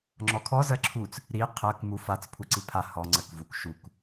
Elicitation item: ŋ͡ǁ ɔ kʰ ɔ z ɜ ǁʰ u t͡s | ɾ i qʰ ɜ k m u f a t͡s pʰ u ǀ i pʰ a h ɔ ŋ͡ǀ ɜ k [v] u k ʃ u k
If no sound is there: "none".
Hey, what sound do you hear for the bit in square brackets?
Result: v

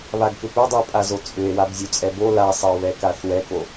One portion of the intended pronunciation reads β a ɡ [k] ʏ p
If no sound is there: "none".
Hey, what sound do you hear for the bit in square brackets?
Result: k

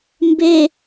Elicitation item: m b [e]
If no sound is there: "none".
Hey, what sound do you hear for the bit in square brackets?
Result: e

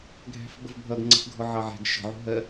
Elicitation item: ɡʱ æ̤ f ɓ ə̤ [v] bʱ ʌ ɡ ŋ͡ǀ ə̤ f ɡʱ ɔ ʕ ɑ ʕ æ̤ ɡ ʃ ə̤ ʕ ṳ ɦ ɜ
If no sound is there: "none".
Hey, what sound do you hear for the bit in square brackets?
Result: v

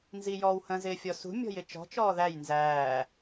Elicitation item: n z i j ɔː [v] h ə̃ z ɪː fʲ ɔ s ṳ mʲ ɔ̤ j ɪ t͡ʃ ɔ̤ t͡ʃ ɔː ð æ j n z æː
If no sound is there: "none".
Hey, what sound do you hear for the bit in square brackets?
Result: w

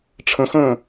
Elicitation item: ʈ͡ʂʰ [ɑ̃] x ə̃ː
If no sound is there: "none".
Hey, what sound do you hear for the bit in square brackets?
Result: ə̃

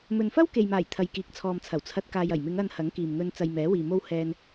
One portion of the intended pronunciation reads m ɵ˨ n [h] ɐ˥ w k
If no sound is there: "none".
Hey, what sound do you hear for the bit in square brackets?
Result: f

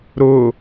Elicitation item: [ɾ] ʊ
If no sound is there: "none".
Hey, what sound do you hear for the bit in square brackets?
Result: ɾ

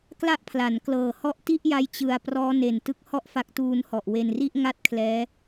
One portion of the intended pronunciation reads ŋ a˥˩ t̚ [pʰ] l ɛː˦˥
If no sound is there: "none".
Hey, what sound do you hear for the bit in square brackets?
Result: kʰ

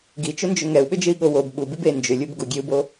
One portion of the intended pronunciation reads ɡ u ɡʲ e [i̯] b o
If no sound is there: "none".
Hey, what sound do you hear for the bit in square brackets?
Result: u̯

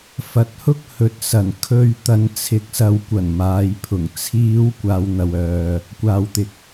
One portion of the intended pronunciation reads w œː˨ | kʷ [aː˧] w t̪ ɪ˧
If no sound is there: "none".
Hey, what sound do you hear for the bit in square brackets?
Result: aː˧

